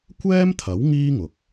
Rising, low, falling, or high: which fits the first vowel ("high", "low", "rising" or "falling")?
high